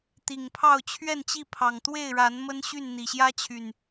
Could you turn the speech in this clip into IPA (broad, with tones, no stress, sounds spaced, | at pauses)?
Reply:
t̪ i˨˩ ŋ pʰ ɑ˥˨ ʊ̯ t͡ɕʰ ɥ ɛ˥˨ n t͡ɕ i˥˨ pʰ ɑ˨˩ ŋ t̪ w e˥˨ ɪ̯ ɻ a˨˦ n m ə˦ n ɕ y˥˨ n n̪ i˨˩ ɕ j ä˦ t͡ɕʰ y˨˩ n